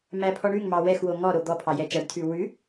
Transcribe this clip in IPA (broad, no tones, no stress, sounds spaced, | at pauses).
m æ pʰ ɔ ɳ ʉ ŋ m ɑ w ɛ x w o ŋ ɔ ɾ o d̪ ɔ pʰ ɑ j ɛ t͡ʃ æ ɖ tʰ ʉ w ʉ